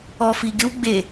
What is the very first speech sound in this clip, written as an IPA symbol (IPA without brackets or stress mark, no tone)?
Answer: ɔ